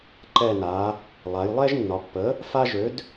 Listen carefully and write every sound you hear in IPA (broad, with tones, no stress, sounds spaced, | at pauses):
ǃ ɛ˧˩ n a˩˧ | lˠ a˩˧ j lˠ ɛ˦ ʒ nː ɒ˩˧ pː ə˩˥ | f a˦ ʒ ø˩˥ d